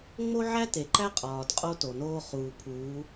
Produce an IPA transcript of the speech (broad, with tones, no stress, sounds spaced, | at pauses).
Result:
ŋ͡m o˦ ʕ æ˦ t e˨ ǃ æ˦ qʼ ɒː˨ d qʼ o˦ t o˨ n oː˦ χ uː˨ pʰ uː˨˦